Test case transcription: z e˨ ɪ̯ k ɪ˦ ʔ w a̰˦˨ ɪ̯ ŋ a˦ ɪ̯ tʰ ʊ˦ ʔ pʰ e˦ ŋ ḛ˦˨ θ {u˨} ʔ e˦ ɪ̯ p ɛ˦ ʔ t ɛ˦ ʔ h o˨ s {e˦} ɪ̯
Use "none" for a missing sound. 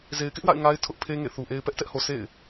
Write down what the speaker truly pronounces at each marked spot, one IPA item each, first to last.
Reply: u˨, ḛ˦˨

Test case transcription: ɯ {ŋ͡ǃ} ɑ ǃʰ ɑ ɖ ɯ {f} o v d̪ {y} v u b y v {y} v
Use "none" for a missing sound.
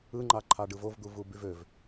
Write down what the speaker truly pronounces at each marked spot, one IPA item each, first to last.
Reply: ŋ͡ǃ, v, u, ø

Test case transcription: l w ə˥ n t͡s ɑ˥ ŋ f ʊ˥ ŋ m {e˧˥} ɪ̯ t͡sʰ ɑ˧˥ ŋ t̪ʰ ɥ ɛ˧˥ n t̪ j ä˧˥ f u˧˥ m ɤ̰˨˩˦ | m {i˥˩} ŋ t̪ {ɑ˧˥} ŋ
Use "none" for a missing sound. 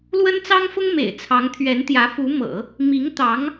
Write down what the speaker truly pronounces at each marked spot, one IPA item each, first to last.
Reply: ḛ˨˩, i˧˥, ɑ˧˥

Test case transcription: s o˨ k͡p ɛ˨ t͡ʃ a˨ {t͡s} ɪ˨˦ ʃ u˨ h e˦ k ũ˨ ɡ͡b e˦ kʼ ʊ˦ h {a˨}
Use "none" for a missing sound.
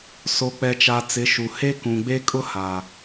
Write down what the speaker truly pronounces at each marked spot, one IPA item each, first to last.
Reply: t͡s, a˨

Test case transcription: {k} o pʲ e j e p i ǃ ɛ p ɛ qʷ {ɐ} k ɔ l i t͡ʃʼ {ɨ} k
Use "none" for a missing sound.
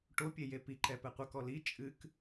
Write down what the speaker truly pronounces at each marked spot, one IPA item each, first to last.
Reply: ʈ, ɐ, ɨ

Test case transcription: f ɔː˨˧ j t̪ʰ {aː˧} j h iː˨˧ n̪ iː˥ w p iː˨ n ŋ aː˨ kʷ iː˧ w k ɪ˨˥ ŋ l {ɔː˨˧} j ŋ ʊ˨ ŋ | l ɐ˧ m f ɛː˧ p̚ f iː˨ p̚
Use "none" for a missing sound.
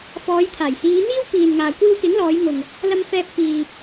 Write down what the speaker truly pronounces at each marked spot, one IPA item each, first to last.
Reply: aː˨˩, ɔː˨˧

